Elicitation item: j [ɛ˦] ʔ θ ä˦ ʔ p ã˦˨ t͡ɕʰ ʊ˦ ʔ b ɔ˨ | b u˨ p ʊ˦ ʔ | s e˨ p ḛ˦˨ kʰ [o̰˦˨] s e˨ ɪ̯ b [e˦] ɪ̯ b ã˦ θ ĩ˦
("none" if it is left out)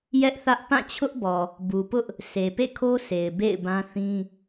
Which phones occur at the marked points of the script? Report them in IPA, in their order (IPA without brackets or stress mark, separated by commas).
ɛ˦, o˦, ḛ˦˨